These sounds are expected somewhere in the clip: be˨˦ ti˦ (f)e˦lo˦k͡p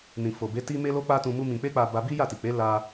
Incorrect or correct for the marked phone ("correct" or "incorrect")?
incorrect